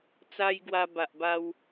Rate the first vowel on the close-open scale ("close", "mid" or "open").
open